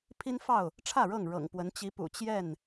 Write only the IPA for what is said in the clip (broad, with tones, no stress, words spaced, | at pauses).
pʰi˦nfɑ˥˨ʊ̯ | ʈ͡ʂʰä˥˨ɻɤ˥˨ŋɻɤ̰˨˩ŋ pwə˨˦n t͡ɕi˨˦pṵ˨˩ t͡ɕjɛ˥˨n